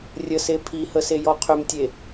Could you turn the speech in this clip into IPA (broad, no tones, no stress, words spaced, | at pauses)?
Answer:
rʲəse pʰihəsejɔ qʰʏmtʲe